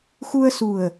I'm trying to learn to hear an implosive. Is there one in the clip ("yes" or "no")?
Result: no